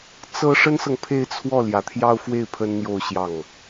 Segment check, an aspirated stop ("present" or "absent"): present